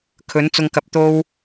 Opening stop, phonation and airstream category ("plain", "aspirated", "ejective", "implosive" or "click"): aspirated